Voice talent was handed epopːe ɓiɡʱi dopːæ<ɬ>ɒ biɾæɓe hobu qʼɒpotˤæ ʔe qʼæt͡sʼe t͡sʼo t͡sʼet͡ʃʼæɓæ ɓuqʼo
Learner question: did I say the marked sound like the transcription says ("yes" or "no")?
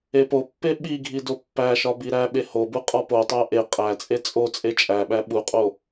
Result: no